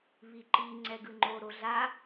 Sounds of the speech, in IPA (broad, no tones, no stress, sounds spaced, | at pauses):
β i ǃ i ŋ͡ǀ ɛ ɡ ɯ ŋ͡ǃ o ɾ o ɮ a